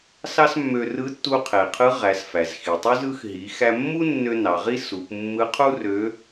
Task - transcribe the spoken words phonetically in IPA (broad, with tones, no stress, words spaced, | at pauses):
sɑ˥smːø˧ rɯ˧˥tːu˧qʰe˩qʰɯ˧˥ ʁæ˩˧sfæ˩z xi˩tˤu˥zɯ˧˥x ɦi˩˧ xæ˧ mːu˥nːø˧ nɑ˩˧ʁi˥ su˩˧p mːɯ˧˥qʰu˥rø˧˥